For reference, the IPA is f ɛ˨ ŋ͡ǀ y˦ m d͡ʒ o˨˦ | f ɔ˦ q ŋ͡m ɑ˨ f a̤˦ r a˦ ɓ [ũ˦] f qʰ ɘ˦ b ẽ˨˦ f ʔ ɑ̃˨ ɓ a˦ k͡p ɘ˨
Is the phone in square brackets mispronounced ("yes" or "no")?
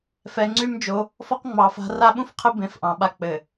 no